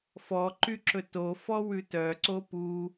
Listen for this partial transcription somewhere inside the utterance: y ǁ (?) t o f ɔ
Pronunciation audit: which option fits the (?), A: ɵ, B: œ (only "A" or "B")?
A